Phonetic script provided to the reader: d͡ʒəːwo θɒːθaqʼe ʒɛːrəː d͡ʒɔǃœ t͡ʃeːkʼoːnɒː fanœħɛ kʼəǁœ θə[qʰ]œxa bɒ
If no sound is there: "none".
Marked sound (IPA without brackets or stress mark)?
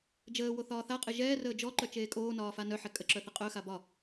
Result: qʼ